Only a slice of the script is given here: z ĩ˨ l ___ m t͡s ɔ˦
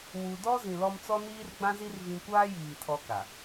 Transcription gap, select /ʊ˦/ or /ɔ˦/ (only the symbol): ɔ˦